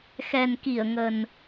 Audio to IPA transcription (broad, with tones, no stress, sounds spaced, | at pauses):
x ɛ˨˩ n k i˧˩ ə̯ ŋ ə˨˩ n